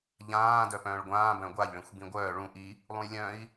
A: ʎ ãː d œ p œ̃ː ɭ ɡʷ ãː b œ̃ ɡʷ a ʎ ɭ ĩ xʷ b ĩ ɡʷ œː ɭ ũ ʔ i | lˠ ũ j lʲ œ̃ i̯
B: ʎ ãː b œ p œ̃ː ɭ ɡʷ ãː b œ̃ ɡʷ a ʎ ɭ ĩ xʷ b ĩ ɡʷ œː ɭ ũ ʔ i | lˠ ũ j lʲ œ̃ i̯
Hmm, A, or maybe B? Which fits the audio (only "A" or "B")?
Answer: A